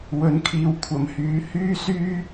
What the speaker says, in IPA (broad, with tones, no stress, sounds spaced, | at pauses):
w ɵ˨˥ n kʰ iː˨ w kʷʰ ɐ˨˩ m h yː˨˥ h yː˥ s yː˥